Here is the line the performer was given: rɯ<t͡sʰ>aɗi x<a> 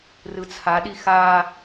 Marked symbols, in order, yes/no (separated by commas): yes, yes